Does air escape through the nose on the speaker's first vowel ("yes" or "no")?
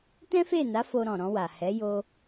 yes